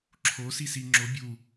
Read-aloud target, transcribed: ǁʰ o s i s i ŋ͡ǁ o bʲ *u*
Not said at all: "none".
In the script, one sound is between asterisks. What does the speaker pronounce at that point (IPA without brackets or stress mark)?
u